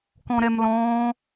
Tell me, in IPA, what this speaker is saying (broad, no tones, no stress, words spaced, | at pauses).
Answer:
kɔ̃ɾɛmlɔ̃ː